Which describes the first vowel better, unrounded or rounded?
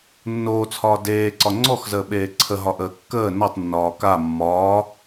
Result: rounded